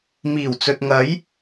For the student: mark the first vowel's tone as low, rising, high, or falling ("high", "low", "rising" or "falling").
low